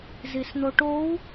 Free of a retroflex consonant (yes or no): no